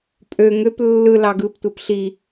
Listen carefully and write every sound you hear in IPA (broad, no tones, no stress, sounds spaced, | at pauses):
pʼ ø ŋ ø p lː ɯ l ɑ ɡ ɯ p tʷ e p ɬ i